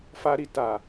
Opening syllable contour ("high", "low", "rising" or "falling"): high